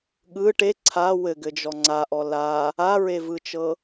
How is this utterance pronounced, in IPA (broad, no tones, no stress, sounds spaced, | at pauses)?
ɠ ɯ ʈ e ǀʰ a w ɘ ɡ ɘ d͡ʒ ɔ ŋ͡ǀ a ʔ ɔ l a | a ɹ e v ɯ t͡ʃ ɤ